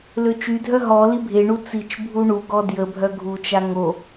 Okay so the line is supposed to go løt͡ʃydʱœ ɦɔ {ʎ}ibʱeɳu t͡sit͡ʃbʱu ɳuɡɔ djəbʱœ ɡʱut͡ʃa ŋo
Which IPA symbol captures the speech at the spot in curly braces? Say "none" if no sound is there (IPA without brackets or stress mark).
l